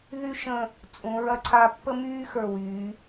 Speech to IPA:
ð y˥ ʃ ə̃˥˧ | t͡sʼ ũ˩˧ ɹ ɐ˧ ǀʰ a˧ pː ə˥ m yː˥ x ə˞˧˩ w yː˩˧

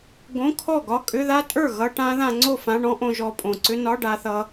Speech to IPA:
ɡ õ˧˥˧ kʰ ɔ˥˩ ɡ ɒ˧˥˧ kʼ ʏ˧˥˧ ð a˦˥ tʼ ə˞˥˩ ɣ ʌ˧˥˧ ʈ ã˦˥ ð ã˧ ŋ͡ǀ o˥˩ f ã˧˥˧ ɳ ɔ̃˦˥ ʔ õ˧ ʒ ɔ˧ pʼ õ˨˩ ǀ ʏ˦˥ n ɒ˧˥˧ ɖ a˧ θ ʌ˧

